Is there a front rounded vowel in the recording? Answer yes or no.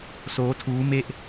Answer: no